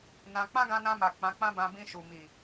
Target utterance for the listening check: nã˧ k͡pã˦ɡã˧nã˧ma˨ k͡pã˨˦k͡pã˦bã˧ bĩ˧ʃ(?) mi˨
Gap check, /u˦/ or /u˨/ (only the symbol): u˨